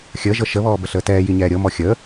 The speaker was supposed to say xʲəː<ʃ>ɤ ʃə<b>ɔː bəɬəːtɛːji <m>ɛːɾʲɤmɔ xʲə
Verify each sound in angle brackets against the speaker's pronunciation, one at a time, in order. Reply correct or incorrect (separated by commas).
incorrect, incorrect, incorrect